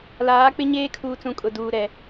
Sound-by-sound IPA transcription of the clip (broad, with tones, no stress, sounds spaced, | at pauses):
l aː˨˦ k͡p ɪ˦ ɲ eː˦ kʰ uː˨ t͡s ũ˨ kʼ ʊ˨ d uː˨ ɾ ɛ˨